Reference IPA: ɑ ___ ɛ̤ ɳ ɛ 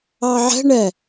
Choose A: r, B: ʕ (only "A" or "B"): B